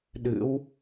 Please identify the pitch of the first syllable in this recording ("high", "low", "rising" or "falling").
rising